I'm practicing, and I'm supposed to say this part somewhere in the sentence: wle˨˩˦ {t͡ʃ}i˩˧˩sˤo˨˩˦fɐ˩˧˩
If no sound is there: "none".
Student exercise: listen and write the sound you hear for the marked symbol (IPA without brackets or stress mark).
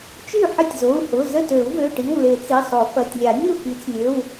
t͡s